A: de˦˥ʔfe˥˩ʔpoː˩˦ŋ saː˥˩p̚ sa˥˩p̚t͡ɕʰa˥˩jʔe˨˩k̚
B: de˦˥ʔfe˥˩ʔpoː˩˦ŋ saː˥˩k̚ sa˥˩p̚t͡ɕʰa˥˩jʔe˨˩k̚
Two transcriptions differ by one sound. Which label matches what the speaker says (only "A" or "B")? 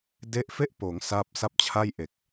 A